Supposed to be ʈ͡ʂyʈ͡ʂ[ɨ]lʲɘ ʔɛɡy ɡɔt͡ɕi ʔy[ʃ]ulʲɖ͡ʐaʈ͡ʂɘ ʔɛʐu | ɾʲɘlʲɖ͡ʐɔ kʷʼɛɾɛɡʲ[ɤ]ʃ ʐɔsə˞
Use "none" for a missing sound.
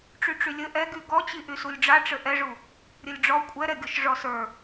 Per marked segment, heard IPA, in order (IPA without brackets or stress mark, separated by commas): y, s, ɔ